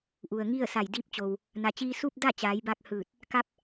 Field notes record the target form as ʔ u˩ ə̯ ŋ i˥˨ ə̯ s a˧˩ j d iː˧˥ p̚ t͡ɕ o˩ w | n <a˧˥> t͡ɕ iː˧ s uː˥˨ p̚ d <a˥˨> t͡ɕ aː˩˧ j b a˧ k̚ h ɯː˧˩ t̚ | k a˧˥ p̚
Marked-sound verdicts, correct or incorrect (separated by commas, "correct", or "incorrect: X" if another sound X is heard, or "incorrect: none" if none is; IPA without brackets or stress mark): incorrect: a˩, correct